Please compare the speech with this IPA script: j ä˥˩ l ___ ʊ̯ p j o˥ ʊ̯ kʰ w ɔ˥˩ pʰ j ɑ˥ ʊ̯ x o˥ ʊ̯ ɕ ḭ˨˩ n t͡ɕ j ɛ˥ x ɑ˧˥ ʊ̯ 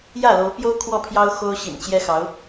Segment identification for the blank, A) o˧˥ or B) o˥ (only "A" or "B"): A